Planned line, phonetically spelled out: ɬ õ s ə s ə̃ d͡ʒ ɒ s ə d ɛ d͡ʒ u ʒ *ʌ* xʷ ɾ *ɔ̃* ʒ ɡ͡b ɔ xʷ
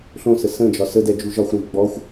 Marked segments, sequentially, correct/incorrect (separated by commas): incorrect, incorrect